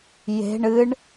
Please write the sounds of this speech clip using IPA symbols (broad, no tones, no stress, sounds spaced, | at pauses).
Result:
j e̤ ɳ ɨ ɳ